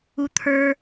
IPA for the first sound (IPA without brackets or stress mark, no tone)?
u